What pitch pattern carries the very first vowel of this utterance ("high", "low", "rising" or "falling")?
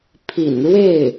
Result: low